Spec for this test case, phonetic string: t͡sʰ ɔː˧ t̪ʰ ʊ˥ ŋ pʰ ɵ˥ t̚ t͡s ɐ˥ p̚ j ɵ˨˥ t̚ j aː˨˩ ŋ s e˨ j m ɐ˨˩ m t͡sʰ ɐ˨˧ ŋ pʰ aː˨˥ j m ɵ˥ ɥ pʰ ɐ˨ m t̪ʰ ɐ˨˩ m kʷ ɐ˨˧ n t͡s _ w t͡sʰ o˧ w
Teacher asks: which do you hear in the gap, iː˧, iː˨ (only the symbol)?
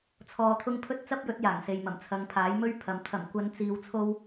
iː˨